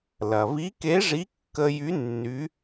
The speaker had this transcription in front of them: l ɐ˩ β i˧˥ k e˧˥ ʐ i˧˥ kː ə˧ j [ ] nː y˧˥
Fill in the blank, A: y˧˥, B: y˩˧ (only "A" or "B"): A